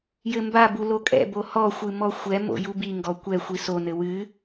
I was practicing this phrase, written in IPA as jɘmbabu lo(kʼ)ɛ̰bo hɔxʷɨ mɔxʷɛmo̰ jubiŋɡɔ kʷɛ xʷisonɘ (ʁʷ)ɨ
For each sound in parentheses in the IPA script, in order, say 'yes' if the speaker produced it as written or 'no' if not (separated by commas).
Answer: yes, no